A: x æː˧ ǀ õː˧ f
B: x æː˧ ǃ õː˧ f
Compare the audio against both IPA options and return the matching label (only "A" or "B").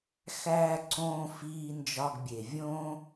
A